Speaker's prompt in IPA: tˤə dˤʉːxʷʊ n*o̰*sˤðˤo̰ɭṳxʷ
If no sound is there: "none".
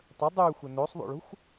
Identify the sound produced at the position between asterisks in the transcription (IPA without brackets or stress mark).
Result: o